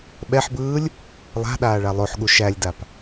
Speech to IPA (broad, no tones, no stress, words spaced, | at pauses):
ɓɛħbɯːlʲ | lˠa̤ ɗaːɭalˠoħɠu ʃælʲdap